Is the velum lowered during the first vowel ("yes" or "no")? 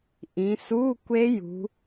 yes